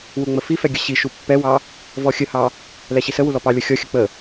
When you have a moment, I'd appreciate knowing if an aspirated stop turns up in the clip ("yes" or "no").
no